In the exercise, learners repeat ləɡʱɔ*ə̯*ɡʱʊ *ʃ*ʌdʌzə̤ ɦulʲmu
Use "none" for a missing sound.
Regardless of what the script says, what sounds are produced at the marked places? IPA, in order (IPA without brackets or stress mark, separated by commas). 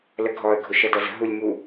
ə̯, ʃ